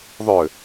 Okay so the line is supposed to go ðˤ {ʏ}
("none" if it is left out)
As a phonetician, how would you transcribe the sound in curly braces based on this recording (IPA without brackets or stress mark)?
ʏ